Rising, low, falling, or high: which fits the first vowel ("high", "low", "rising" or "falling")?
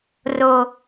low